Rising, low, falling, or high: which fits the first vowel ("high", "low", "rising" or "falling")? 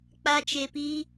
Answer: high